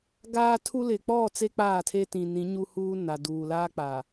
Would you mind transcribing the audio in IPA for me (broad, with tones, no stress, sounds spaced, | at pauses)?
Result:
ɡ aː˦ tʰ u˦ l ɪ˨ k͡p ɔ˦˨ t͡s e˦ k͡p aː˦˨ tʰ e˦ t ĩ˨ n ĩ˨˦ ɲ u˦ h uː˦ n a˨ d uː˨ l aː˦ k͡p a˨